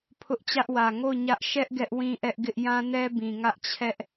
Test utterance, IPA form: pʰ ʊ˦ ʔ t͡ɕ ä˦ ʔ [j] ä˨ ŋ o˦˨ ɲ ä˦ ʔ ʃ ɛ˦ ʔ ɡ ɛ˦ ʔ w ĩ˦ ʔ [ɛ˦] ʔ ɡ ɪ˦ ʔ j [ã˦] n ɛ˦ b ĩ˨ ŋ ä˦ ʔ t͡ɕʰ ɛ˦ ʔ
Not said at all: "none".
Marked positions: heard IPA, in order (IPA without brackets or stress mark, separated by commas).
w, ɛ˦, ã˦